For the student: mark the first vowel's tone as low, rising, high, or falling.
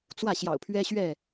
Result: falling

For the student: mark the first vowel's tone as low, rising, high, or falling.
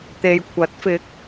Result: low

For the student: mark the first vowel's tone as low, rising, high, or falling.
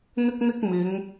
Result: high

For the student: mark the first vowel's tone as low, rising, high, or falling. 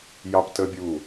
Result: high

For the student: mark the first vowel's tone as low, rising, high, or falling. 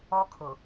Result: high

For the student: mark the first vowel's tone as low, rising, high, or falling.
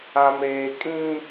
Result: high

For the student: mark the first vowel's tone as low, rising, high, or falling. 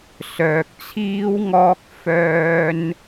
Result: low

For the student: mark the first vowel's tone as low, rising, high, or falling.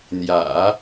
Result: low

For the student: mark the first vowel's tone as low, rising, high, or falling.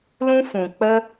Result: high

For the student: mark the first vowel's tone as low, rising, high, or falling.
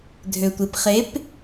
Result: low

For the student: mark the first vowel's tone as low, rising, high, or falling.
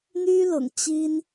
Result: high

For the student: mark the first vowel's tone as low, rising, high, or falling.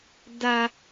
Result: high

